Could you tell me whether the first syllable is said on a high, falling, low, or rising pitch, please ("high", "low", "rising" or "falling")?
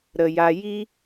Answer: low